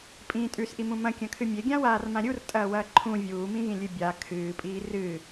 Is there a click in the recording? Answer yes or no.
yes